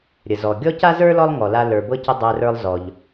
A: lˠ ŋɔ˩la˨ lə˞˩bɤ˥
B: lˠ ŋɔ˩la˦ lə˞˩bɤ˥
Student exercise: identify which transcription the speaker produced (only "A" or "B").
B